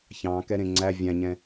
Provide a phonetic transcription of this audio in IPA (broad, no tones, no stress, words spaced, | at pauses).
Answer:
çɑ̃ kɛɾẽŋ͡ǀæ vʲæ̃ɲɛ̃